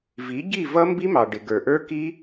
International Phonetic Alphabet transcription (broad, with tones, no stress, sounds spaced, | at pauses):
v i˩˥ ɟ i˥˩ v ʌ˦˥ m b i˦˥ m ɑ˩ ɖ ɪ˩ ɡ ə˞˩ ʔ ə˞˦˥ k i˦˥